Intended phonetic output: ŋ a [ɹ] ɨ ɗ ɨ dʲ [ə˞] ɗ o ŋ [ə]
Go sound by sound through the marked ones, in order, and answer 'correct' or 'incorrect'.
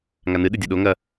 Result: incorrect: n, incorrect: ɐ, incorrect: ɐ

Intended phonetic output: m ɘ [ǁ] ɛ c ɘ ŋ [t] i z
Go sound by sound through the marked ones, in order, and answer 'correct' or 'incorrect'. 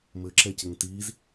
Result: correct, correct

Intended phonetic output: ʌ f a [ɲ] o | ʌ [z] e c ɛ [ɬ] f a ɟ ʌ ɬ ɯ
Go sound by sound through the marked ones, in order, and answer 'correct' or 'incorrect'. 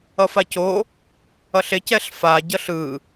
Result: incorrect: c, incorrect: ɬ, correct

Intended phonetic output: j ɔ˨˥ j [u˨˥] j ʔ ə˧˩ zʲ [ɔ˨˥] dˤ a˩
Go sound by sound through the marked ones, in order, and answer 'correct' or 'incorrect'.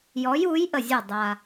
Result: correct, incorrect: ɔ˧˩

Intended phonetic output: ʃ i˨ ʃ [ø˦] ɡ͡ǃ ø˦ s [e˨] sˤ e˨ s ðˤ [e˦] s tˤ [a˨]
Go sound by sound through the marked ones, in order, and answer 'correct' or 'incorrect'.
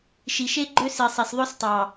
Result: incorrect: e˦, incorrect: i˨, incorrect: ø˦, incorrect: ɑ˨

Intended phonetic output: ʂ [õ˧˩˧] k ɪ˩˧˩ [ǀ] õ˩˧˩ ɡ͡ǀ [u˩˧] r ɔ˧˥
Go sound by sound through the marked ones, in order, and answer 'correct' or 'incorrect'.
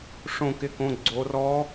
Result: correct, incorrect: k, incorrect: o˩˧

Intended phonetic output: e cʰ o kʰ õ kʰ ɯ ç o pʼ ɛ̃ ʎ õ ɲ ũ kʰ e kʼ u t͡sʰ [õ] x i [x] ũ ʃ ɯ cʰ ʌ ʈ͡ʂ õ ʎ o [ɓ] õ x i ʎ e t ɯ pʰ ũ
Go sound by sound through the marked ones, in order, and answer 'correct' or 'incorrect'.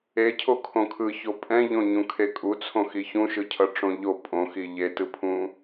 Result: correct, incorrect: ç, incorrect: pʼ

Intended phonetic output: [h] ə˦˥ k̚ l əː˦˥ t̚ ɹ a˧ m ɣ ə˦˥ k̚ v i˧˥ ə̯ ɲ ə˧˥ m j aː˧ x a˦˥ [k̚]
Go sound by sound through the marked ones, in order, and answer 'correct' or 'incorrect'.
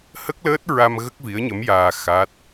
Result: correct, incorrect: t̚

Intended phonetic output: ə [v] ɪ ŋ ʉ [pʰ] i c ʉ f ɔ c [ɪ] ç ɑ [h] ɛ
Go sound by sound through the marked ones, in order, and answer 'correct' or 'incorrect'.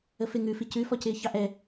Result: incorrect: f, incorrect: f, incorrect: ɪː, incorrect: ʔ

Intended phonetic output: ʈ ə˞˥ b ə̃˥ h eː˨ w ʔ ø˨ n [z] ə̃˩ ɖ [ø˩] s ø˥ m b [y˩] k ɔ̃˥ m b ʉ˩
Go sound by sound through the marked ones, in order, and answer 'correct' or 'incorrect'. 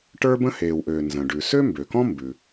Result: correct, incorrect: ʉ˩, incorrect: ø˩

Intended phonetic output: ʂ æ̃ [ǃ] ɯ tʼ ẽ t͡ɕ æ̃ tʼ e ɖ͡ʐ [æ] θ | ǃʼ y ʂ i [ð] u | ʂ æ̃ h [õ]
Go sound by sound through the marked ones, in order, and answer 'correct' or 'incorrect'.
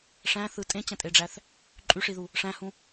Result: incorrect: θ, correct, correct, incorrect: ũ

